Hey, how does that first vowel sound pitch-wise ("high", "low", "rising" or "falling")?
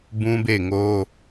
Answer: high